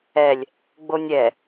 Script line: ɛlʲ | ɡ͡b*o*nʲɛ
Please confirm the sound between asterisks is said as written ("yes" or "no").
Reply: yes